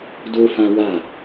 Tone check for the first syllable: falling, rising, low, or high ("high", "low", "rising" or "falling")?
high